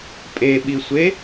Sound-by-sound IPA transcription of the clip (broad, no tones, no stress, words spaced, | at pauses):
pʼeɓisʷe